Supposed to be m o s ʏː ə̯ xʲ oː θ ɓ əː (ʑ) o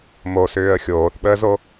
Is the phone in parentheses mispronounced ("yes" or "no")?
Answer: yes